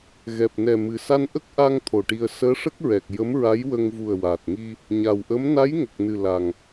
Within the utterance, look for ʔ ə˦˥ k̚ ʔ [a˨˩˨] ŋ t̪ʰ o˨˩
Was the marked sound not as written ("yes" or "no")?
yes